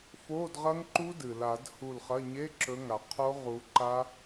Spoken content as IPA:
f o˧˥˧ d ʁ ɐ˦˥ ŋ ǃ u˦˥ d ɨ˩ l a˨˩˦ d h u˧˩ l χ ɐ˧˥˧ ɲ e˧˥˧ ǁ ɵ˨˦ ŋ a˩ qʰ o˦˥ ʁ u˨˦ ǃ a˦˥

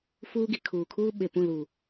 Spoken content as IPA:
f uː˦ ɡ i˨ kʰ uː˨ kʰ uː˦ ɓ e˨ p ũ˦˨ l uː˨

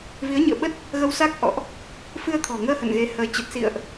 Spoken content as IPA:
v i˨˦ ə̯ ɲ ɨ̰˧˨ ə̯ ɓ ə˦˥ t̚ | ɣ ə˧ w s a˦˥ k̚ ʔ ɔ̰˧˨ ʔ | f ɨ˧ ə̯ t̪ʰ ɔ̤˨˩ ŋ əː˧ h ə̰˧˨ n ɣ e˨˦ h əː˨˦ t͡ɕ ə˨˩ t̚ s ḭ˧˨ ə̯ ʔ

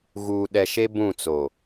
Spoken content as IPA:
ɣ uː˨ ɗ ɛ˨ ʃ e˦ b ũ˦˨ t͡s o˨

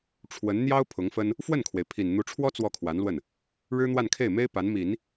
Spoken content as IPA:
ʈ͡ʂʰ w ə˧˥ n n̪ j ɑ˥ ʊ̯ pʰ ʊ˧˥ ŋ f ə˥ n | f w ə˥˩ n kʰ w e˩ ɪ̯ pʰ i˨˩ n n̪ u˧˥ ʈ͡ʂʰ w ɔ˥ t͡s w ɔ˥˩ kʰ w a˧˥ n l w ə˥˩ n | ɻ ɻ̩˥ n̪ w a˥˧ n kʰ e˥˩ ɪ̯ m e˥ ɪ̯ p a˧˥ n m i˨˩˦ n

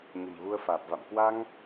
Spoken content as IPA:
ɲ ə̤˨˩ m ɣ u˧ ə̯ f aː˨˩ p̚ v a̰˧˨ m k w a˧ ŋ

